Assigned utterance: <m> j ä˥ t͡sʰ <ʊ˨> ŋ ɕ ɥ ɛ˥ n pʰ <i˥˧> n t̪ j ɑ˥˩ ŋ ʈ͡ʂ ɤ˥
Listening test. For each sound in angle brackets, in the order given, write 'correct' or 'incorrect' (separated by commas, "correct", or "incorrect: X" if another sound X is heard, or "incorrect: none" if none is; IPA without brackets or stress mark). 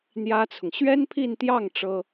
incorrect: n̪, correct, correct